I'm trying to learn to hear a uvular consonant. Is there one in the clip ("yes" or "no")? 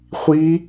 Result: yes